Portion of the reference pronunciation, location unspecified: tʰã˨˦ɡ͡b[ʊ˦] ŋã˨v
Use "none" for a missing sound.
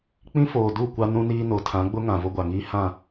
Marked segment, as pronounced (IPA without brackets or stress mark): ʊ˦